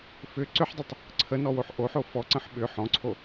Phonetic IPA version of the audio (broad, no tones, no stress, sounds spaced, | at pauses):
f ʏ ǀ ʏ ħ dˤ ə tˤ | ǀʰ ə n ɔ w o ħ ʔ o ħ o f ɔ ǀ ə̃ ħ ɓ ʏ ħ ɔ̃ ǀʰ o